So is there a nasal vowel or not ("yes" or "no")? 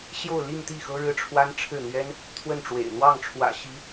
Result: no